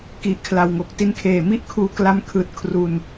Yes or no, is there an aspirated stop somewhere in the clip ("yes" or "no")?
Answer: yes